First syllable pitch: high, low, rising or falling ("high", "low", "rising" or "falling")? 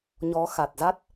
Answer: rising